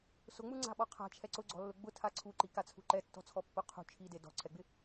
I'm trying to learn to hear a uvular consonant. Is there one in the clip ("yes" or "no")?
yes